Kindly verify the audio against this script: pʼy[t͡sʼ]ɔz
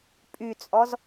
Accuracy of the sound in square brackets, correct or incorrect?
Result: correct